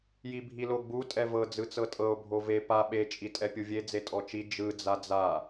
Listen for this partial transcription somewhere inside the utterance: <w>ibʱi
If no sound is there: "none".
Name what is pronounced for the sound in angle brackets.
j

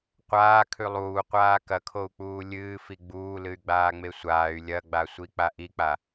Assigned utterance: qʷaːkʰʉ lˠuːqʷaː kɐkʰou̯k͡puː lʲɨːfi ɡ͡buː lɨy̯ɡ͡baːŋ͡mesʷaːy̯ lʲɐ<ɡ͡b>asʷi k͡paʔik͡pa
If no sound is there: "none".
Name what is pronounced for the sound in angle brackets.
ɡ͡b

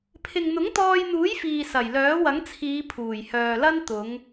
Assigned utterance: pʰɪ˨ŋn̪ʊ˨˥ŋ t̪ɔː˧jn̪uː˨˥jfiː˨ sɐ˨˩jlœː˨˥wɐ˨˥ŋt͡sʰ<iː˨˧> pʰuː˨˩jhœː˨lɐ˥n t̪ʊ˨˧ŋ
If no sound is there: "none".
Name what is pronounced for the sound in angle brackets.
iː˨˧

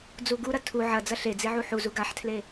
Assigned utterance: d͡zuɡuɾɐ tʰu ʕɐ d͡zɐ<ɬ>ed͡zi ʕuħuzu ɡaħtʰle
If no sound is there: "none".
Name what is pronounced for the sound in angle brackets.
ɬ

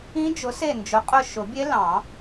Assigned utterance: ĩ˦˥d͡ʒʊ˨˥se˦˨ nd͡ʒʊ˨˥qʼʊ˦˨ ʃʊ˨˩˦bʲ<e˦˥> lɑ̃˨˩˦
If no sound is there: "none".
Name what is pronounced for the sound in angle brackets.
e˦˥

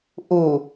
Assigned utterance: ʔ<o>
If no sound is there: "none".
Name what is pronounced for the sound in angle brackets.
u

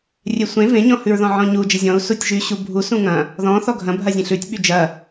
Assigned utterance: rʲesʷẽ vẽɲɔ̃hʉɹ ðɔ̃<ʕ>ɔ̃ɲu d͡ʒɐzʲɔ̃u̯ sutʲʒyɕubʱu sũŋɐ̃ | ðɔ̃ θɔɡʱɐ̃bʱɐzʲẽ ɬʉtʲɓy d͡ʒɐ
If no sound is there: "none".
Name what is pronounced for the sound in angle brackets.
ʕ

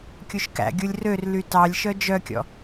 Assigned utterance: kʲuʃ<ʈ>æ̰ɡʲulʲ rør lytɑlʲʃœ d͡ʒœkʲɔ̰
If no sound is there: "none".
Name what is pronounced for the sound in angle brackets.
k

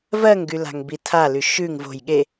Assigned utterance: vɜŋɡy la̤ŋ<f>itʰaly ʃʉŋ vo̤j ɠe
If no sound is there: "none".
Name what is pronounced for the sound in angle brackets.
b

